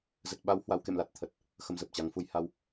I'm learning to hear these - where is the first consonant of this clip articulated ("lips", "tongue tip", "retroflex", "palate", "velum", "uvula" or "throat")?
tongue tip